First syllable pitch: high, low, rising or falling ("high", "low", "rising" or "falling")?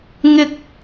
high